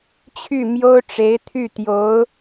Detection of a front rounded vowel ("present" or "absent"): present